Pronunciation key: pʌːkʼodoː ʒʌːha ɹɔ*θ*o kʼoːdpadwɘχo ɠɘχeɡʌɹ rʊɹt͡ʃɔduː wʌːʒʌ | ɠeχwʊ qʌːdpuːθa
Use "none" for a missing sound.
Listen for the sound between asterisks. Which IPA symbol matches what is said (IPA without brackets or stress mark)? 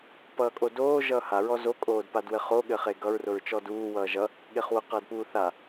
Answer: z